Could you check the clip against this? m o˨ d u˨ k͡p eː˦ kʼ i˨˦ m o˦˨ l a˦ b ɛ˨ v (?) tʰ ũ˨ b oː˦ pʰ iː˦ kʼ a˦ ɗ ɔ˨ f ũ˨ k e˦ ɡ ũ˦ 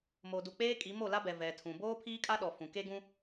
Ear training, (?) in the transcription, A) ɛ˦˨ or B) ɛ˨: B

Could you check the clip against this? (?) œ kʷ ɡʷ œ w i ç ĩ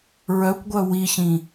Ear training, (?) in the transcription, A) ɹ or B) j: A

